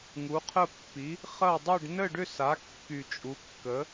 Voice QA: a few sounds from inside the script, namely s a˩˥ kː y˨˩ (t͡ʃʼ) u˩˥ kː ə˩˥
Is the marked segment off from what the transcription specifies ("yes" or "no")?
no